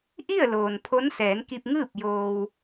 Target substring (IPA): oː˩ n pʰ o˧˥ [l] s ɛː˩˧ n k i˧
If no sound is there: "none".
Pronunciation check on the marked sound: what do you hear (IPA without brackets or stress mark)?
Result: n